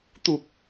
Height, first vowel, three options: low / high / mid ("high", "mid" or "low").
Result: high